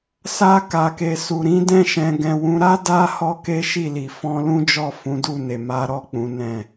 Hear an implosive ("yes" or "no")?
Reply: no